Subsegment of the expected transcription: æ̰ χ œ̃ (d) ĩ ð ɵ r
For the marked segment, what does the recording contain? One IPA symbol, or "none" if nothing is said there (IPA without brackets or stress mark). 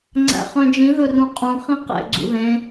d͡ʒ